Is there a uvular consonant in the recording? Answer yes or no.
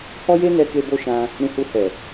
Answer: no